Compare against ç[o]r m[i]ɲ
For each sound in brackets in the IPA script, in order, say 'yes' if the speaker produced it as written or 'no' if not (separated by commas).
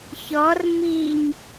no, yes